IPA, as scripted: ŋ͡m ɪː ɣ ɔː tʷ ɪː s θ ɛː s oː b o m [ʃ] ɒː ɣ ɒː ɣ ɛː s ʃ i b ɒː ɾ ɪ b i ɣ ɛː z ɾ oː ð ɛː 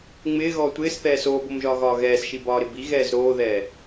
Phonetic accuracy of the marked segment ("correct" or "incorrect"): incorrect